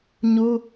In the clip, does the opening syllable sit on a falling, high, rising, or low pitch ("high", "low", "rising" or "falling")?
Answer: high